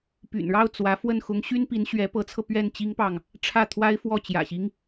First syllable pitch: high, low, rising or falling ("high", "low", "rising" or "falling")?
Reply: low